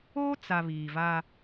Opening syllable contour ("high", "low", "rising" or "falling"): high